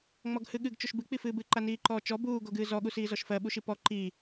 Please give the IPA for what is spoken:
ŋ͡m ɔ ɡ h ɨ ɠ ɨ ɡ t͡ʃ o ʃ b ɨ k͡p i f ɨː b ɨ ǃ a n iː ǃ ɔː t͡ʃ ɔ b uː ɡ o ɡ ɨː z ɔ ɠ u s iː z ɔ ʃ f ɜ ɓ u ʃ i p ɔ ǃ iː

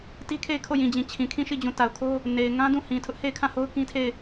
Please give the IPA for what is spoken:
t i˦ kʰ e˦˨ ɪ̯ kʰ o˦˨ j ĩ˨ d͡ʑ ĩ˨ t͡ɕʰ ĩ˨ kʰ ĩ˦˨ ʃ i˦˨ d͡ʑ ũ˨ t a˨ ʊ̯ kʰ o˦ | n e˨ ɪ̯ ŋ ã˦ d ũ˦˨ h ĩ˨ tʰ ʊ˦ ʔ h e˦˨ ɪ̯ kʰ ã˦˨ h o˦ ʊ̯ k ĩ˦ tʰ e˦˨ ɪ̯

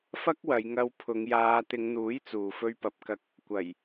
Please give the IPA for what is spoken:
f ɐ˥ k̚ w ɐ˨˧ j ŋ ɐ˧ w pʰ ʊ˨˧ ŋ j aː˨˧ t̪ ɪ˨˧ ŋ n̪ uː˨˥ j t͡s uː˨ f ɵ˧ ɥ p ɐ˨˥ p̚ k ɐ˧ k̚ | kʷ ɐ˨˩ j

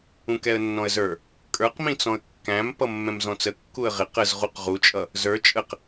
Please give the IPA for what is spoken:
ũ k ɛ ə̯ nː ɔ̃ ə̯ z ə˞ | kʼ ə˞ q m ĩ t͡s ɔ̃ ə̯ kː æ̃ m p ʌ mː ɛ̃ m z ɔ̃ t͡s ə kː u ə̯ ʁ ɪ q ə z ʁ u q ʁ u t͡ʃʼ ʌ | z ə˞ t͡ʃʼ ə q

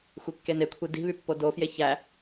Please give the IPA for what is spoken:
xʷ e kː e n e kʷʰ i d i̤ β y pː o d o f j e ç æ

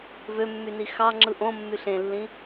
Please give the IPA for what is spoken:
v ø mː y n i x ɑ ŋ͡ǁ ɯ ʔ õ mː y ɬ ẽ lː ĩ

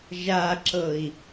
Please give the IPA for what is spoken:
ʒ a ǁ ɤ i̯

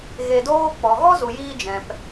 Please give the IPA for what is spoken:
ɣ e˧ d oː˦ k͡p ɔ˨ ɣ ɔ˦ z u˨ j iː˧ d͡ʒ ɛ̃˨ p

